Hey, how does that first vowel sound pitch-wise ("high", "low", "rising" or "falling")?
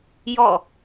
falling